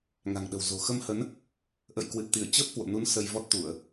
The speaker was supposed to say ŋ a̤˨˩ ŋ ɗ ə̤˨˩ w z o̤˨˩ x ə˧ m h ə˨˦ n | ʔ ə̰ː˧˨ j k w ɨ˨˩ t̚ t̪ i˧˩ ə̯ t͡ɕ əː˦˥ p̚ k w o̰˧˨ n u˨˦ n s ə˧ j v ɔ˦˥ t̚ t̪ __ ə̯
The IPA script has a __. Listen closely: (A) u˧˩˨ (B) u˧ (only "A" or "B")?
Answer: A